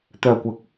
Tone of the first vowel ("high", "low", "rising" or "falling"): low